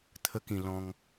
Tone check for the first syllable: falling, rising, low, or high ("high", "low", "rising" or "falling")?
high